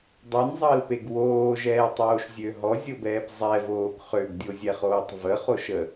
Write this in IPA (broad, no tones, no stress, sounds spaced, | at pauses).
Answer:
dˤ u n zˤ əː l p e ɡ w oː ʒ ɛː tˤ oː ʃ zʲ ø ɦ ɔ zʲ o b ɛː p zˤ ɛ v oː ɡ χ ø ɡ dʲ o zʲ ɛ χ oː tˤ v ə χ o ʃ ə